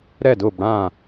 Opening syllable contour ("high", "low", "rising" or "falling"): falling